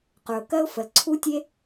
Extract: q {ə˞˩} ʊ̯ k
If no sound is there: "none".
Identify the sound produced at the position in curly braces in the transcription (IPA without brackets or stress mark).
ə˞˩